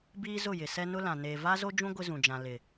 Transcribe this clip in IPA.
b iː˦ z ʊ˦˨ j ɪ˨ s ɛ˦ n ʊ˦ l ã˨ n eː˨ v a˦ z o˦ d͡ʒ ũ˦ ɡʷ ɪ˦ z ũ˨ d͡ʒ ã˨ l ɪ˨

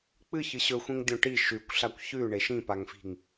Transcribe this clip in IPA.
k͡p ɨ ç ɨ ɕ ɵ xʷ ĩ ŋ dʲ õ ʈ i ʃ ʉ kʷ ɬ a kʷ ç ʉ ɳ e ʃ ĩ p a ŋ f i̤ ŋ

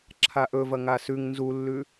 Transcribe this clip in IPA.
ǁʰ a ʔ ɵ v ɐ ŋ a s ʉ ŋ n z u lː ʉ

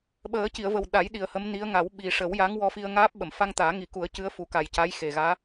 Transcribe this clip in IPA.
ɓ əː˨˩˦ c i˨˩˨ ə̯ v ə˨˩ w ɗ a˨˩˦ j ɗ i˨˩ ə̯ h ə˧˥ m n i˧˥ ə̯ ŋ a˨˩˦ w ɓ i˨˩ ʂ ə˨˩˦ w j a˧˥ ŋ w ɔ˧ f i˧ ə̯ ŋ aː˦˥ p̚ ɓ ə˨˩˨ m f a˧ ŋ t̪ aː˨˩˦ ŋ i˨˩˦ k u˨˩˦ ə̯ c ɨ˧˥ ə̯ f u˨˩˦ k a˨˩ j c a˧˥ j x e˨˩ ɣ aː˧˥

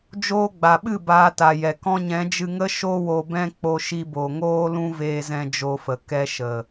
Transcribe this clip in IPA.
d͡ʒ oː˧ ɡ͡b a˨ ɓ ɨ˦˨ b aː˧ t a˨ j ɛ˨ k ɔ̃˧ ɲ ɛ̃˨˦ d͡ʒ ɨ˧ ŋ ə˦ ʃ o˦ w o˧ b ɛ̃˦ k͡p o˧ ʃ i˧ b o˨ ŋ oː˦ l ũ˦ v eː˧ z ɛ̃˧ d͡ʒ o˧ f ə˨ k ɛ˧ ʃ ə˨

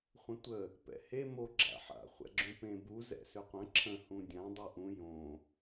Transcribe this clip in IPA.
χʷ ə̃ tʷ ə | p ɛ̰ h e m o ɡ͡ǁ a̰ ħ a̰ χʷ ɛ̰ ɡ͡ǁ ũ p ẽ b u z ɛ̰ s ʏ qʷ ə̃ ǁʰ ə̃ h ũ dʲ ã dˤ u ʔ ũ j õ

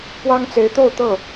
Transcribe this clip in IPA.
p w ɑ˥ ŋ t͡s e˧˥ ɪ̯ t̪ o˥˧ ʊ̯ t̪ ɤ˥˩

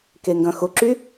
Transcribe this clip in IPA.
k e ŋ ɡ ɐ̃ x ʊ ǁ y

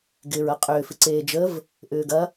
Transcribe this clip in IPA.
ɡ ɪː ɹ ɐ qʼ ʏː f ɪ ǀ eː d͡ʒ ə v | ʔ ʏː ɡ ɐ

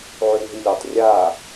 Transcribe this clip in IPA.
ʕ ʉ w ɦ i lʲ o tˤ rʲ a

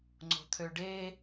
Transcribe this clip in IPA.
ŋ͡ǀ o̤ t̪ʰ ø ɖ e

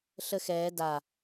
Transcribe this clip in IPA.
ɬ ə x ɛː d a

